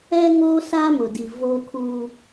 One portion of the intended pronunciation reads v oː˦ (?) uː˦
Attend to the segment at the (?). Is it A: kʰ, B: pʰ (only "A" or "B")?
A